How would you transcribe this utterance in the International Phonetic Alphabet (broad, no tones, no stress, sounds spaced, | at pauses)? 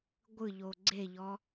ɡʷ ɯ ʎ o ɡ͡ǀ e ʎ ɔ